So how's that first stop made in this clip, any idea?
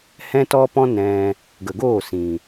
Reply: plain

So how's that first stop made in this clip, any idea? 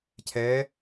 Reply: aspirated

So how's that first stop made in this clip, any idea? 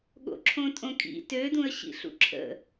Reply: implosive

